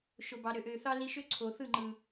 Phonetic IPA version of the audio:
ʃo˨bɑ˨ ɾø˨ʔø˨ θɑ˦li˧ʃø˦ ǀʰo˨θɯ˦˨ŋ͡ǃɯ˨

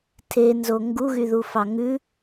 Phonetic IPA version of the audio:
tʰenzo ŋɡuɣyðufɑ ŋʉ

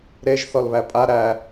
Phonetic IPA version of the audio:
ɾeʒ θɔlβæpʼa ɾæ

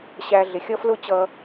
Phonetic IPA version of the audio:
ɕæ˧ ɮɪ˨xʲʌ˦flʊ˦t͡ɕʌ˧

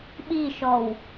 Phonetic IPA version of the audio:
ɓiʃɔw

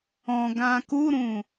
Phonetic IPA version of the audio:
ɔ̃ɡã kuɾũ

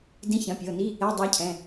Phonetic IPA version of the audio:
dĩ˧˥˧çɐ̃˩˧˩pʲɤ˩˧˩ni˧˥˧ | ɛ˧˥˧dˤa˧˥cʰɛ̃˩˧˩

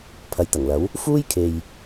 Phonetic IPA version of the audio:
pʰɐ˨jt̪ɐ˨˩ŋlɐ˨˥w | fuː˥jkʰe˨j

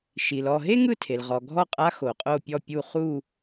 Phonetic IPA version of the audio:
ʃi˩l ɔ˦˨ ɦe˥ŋɯ˦˨tʰe˩l ʁɔ˩ ɡʱɔ˦˨qʼa˧˥ xo˩qʼo˦˨pʲɔ˦˨pʲu˦˨ χu˦˨

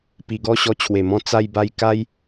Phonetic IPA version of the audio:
pi˨˩ɡɔ˥˧ ɕɔ˧t͡ɕʰwe˨˩mɔ̃˧ t͡sa˧jba˧j ka˦j

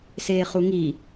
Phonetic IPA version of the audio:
seːχuŋi

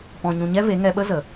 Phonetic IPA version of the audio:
pɔ̃˨ɲũ˨ɲɛ˦ ve˨˦ŋɛ˧ɓə˦zə˨

